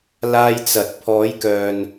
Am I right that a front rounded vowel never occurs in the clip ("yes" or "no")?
no